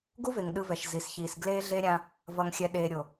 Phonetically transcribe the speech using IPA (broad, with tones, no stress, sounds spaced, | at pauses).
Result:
ɡ u˦ v e˨ ŋ ɗ ɯ˨ v ɛ˨ ʃ z i˨ s ç iː˨ s ɡ l eː˦ ɮ e˦ ɾʲ ã˦ | v ʌ˨ ŋ xʲ ɛ˨ ɗ eː˨ ɾʲ o˨